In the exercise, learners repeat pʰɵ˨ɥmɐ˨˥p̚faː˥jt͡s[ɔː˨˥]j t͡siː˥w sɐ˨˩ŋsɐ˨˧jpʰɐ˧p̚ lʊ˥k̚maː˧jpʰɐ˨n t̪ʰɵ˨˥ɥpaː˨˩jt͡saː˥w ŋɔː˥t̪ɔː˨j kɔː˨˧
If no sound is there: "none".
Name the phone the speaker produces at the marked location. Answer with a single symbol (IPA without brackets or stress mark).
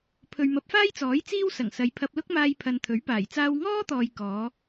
ɔː˨˥